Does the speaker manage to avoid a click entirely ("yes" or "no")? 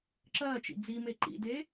no